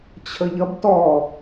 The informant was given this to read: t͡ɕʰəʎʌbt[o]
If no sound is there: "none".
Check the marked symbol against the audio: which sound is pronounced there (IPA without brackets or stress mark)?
ɔ